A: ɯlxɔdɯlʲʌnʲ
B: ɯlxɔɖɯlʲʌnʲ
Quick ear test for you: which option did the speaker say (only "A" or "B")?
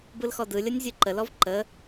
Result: A